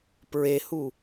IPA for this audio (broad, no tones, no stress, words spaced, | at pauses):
pɹehu